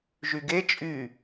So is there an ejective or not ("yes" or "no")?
yes